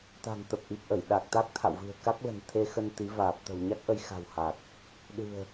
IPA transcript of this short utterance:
t̪ a̤˨˩ ŋ t̪ ə˨˩ p̚ ʔ i˨˩ p̚ ʔ ə˧˩ j ɗ a˨˩ k̚ t̪ a˦˥ k̚ t̪ʰ a̰˧˨ w v ɨ̤˨˩ ə̯ k a˦˥ k̚ l ə̤˨˩ n t̪ʰ e˧ x ə˧ n t̪ i˨˦ v aː˨˩ p̚ t̪ ə̤˨˩ w ɲ a˦˥ k̚ ʔ ə˧ j x a̤˨˩ w h a˨˩ k̚ | ɗ ɨ̤˨˩ ə̯

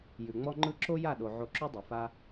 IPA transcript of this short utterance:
j ʉ˨ ŋ͡m ɔ˦ ŋ͡ǃ ɯ˦ ǁ o˦ j a˦˨ ɗ o˨ ʕ o˧ ǁ ʉ˦ dˤ ɯ˨ f a˦

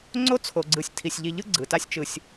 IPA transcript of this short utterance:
ŋ͡ǀ o˦ t͡sʰ o˨ ɡ͡ǀ ɯ˨ sʲ tʰ i˨ sʲ ʎ i˧ ʎ ɯ˦ ɡ͡ǀ ɯ˨ t a˦ sʲ t͡ʃ ɯ˧ sʲ

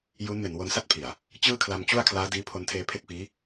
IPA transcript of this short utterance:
j u˦˥ n m e˨˩ n w o˧ n s a˥˩ t̚ pʰ i˨˩ a̯ | t͡ɕ ɯː˥˩ kʰ l a˧ m t͡ɕ u˥˩ a̯ kʰ l aː˦˥ d iː˦˥ pʰ o˧ n tʰ eː˧ pʰ e˥˩ k̚ f iː˦˥

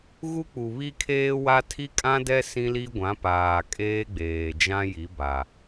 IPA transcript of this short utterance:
ɣ u˦ k͡p u˨ β i˦ kʰ eː˦ w a˦ tʰ i˦ kʼ ã˦ d ɛ˦ s ĩ˦ l i˦ ɡʷ ã˨˦ p aː˨ kʼ eː˦ ɡ͡b eː˨ d͡ʒ ã˦ j i˨˦ b a˨

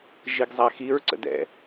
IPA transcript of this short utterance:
ʒ i ɡ zˤ a x i ɹ ǀ ə̰ d ɛ̰

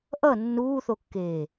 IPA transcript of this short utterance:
ʔ ʌ nː uː θ o kː eː

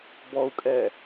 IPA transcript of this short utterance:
b ɔ u̯ kʼ ɛ

